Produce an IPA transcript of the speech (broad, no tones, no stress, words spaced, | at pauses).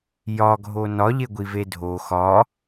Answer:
jɒɡʱo nɒʎeɡʷive dʱo xɒ